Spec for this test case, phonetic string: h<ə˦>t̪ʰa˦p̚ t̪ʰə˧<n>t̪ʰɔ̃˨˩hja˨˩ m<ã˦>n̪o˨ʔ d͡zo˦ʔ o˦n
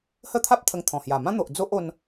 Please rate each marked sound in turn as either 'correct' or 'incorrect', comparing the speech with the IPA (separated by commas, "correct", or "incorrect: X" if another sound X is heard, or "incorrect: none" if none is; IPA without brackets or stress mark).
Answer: correct, incorrect: ŋ, correct